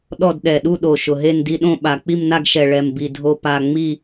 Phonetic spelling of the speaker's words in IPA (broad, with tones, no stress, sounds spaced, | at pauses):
ɗ ɔ˥˨ d ɗ ɛ˨˩ ɗ u˥˨ ɗ o˨˩ ʃ ʊ˨˩ ɦ e˥˨ n d i˥˨ ɗ õ˥˨ ɓ a˨˩ k͡p i˥˨ m n a˥˨ ɡ ʃ ɛ˨˩ ɭ ɛ˨˩ m b i˨˩ dʱ o˥˨ p a˥˨ ŋ͡m i˥˨